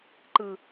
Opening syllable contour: low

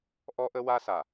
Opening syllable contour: high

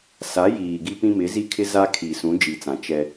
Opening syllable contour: rising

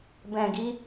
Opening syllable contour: low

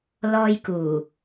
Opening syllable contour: high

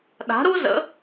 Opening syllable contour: rising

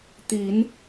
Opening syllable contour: rising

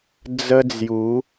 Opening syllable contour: high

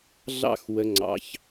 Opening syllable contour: high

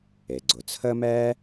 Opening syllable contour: low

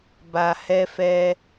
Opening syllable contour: low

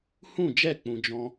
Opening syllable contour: falling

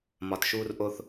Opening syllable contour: low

